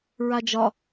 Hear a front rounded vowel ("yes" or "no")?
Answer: no